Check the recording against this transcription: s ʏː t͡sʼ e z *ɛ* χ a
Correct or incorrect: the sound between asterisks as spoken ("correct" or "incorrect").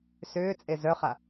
incorrect